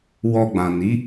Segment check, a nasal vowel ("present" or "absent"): present